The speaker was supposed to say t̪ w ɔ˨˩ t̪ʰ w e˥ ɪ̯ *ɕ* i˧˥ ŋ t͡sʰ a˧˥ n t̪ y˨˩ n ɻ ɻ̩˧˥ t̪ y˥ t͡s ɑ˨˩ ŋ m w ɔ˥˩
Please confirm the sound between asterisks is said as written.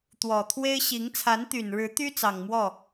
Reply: yes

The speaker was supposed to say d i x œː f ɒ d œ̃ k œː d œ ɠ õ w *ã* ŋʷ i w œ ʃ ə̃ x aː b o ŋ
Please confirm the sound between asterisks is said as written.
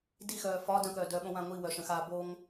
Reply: yes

